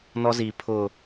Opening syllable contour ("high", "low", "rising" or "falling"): high